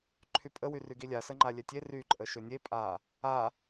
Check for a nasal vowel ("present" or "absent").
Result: absent